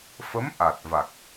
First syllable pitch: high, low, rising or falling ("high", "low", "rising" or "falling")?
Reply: rising